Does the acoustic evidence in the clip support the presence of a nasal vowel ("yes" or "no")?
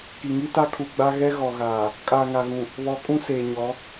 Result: yes